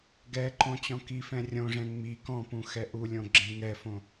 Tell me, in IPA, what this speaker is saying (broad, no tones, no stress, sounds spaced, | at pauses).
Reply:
ɡ ɛ ǃ õ t͡ɕ ɔ̃ k i f ɛ̃ rʲ õ ʐ ɛ̃ ŋ͡m i k ɔ̃ p ũ x ɛ ʔ u lʲ õ ɡ͡ǁ ẽ ŋ ɛ f õ